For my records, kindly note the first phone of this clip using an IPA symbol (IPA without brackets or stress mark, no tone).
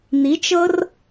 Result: n̪